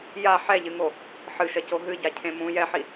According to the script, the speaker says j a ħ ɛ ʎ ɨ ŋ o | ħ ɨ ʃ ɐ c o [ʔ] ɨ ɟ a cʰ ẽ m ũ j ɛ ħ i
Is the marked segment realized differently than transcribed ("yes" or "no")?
yes